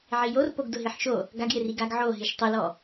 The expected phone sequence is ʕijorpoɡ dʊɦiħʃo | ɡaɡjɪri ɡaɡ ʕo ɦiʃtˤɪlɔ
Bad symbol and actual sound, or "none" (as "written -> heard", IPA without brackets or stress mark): none